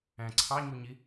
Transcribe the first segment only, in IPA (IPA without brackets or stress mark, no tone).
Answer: æ̃